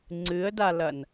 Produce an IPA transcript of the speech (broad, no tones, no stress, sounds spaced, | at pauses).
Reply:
ŋ͡ǀ ɨ ə̯ d a l ɐ n